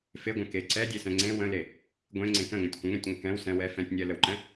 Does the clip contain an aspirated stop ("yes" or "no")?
no